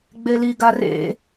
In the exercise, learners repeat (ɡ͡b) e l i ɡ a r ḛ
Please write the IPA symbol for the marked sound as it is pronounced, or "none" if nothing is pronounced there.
ɡ͡b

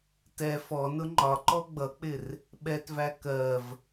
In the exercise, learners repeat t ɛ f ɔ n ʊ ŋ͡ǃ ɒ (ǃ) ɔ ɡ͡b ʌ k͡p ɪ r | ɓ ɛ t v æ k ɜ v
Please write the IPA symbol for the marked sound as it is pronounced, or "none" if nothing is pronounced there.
ǃ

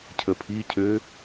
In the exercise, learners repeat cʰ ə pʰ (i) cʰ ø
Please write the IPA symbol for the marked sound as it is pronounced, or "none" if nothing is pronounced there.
i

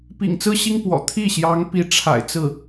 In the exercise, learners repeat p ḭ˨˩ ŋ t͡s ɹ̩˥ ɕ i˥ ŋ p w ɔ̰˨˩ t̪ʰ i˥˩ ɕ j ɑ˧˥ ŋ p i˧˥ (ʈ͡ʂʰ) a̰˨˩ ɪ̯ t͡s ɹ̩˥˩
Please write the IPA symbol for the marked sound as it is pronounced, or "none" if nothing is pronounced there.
ʈ͡ʂʰ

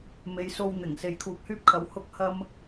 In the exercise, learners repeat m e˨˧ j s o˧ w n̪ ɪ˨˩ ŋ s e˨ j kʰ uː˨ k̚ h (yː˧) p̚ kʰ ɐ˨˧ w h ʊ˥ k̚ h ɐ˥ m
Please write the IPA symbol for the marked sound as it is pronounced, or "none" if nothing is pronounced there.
yː˧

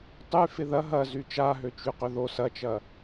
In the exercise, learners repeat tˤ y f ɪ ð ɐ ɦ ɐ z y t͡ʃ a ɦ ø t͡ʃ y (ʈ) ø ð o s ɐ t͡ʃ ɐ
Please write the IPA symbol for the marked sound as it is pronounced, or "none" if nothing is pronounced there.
q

